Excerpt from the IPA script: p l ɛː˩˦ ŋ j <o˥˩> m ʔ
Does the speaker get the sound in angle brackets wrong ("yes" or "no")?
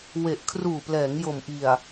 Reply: yes